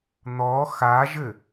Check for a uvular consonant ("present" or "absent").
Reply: absent